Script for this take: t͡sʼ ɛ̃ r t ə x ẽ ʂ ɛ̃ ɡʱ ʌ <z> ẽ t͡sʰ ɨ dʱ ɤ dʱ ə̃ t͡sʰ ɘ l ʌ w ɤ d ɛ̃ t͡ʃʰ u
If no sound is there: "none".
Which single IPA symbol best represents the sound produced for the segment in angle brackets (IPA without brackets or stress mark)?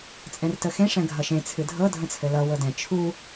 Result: ʃ